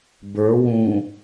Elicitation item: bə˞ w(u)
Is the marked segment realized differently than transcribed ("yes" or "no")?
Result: yes